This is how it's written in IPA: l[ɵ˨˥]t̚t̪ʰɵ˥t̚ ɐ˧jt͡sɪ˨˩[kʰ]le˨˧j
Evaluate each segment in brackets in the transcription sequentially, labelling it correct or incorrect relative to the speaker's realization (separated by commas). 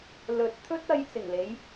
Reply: correct, incorrect